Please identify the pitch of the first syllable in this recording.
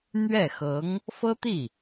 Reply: falling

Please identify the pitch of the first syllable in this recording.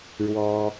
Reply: high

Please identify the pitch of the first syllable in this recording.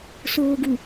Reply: low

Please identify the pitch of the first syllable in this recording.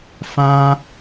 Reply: high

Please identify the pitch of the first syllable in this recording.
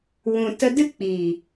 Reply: low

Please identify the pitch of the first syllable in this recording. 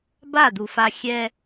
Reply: falling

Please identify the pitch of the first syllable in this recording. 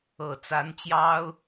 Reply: low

